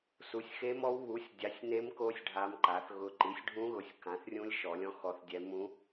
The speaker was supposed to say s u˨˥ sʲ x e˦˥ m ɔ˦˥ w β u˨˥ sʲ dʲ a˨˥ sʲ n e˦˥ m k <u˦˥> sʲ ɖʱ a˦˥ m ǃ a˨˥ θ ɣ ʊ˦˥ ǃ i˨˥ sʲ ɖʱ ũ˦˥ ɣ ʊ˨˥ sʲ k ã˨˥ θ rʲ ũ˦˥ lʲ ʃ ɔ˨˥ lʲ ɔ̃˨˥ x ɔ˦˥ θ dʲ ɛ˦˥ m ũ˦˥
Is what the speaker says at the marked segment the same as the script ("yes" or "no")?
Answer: no